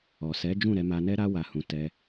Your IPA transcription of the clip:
ɔ˨ s ɛ˨˦ d͡ʒ ũ˦˨ ɾ ɛ˧ m a˧ n ɛ˦ ɾ a˦ w a˧ h ũ˧ t ɛ˦

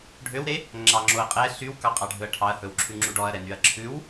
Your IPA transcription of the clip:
ɖʱ ø w ɾ e | ŋ͡ǁ ɑ ŋ͡ǁ o ɐ̯ qʼ ɛ ɬ y w k ɑ qʼ ɑ ɖʱ ɵ ɐ̯ ʈʰ ɑ ɐ̯ h ɵ w ǁʰ ʉ ŋ͡ǁ u ɖ ɔ ɐ̯ ɾ ɛ n y ɐ̯ ǁʰ ʉ w

